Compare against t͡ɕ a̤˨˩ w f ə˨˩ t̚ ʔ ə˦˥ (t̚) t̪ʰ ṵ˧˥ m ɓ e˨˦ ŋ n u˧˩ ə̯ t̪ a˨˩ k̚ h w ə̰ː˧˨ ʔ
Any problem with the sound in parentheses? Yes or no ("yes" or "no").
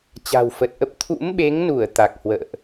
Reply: yes